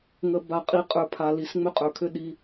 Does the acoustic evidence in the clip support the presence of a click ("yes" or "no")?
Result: no